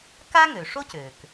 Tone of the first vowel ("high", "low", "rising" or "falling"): high